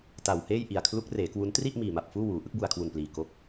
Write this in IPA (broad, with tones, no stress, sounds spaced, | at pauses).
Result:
t a˨˩ w h eː˥˩ j ʔ i˨˩ a̯ kʰ l u˦˥ k̚ r eː˩˦ k w u˦˥ n t r i˥˩ ʔ m iː˨˩ m a˨˩ p̚ f uː˥˩ w uː˩˦ ʔ ɯ˦˥ k̚ b u˨˩ a̯ kʰ w u˨˩ n p l iː˨˩ k o˦˥ k̚